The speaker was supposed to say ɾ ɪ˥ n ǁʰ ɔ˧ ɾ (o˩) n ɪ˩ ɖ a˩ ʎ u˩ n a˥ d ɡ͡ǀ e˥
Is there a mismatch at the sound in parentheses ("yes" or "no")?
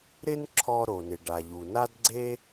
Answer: no